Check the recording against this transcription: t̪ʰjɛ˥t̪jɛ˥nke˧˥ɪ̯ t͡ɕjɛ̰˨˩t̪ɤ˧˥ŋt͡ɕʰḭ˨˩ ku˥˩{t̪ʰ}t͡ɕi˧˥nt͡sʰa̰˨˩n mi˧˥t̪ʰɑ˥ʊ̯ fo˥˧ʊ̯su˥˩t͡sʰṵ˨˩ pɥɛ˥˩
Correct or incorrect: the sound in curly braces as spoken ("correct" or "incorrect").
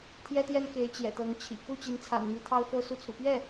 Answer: incorrect